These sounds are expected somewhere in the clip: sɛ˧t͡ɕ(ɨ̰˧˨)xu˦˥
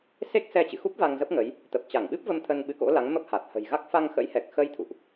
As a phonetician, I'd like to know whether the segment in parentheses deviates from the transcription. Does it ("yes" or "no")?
no